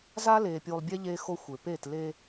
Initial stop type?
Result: plain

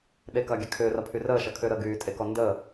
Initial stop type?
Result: implosive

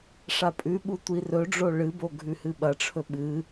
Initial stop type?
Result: ejective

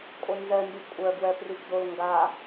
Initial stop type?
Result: ejective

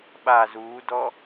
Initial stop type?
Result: implosive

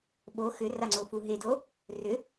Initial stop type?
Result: implosive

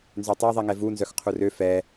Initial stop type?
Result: plain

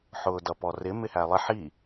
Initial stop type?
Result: plain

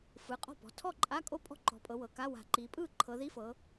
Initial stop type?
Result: ejective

